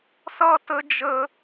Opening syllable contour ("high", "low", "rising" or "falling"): high